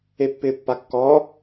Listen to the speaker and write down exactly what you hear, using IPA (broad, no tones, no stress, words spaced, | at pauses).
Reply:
epːɪːpːakːɔː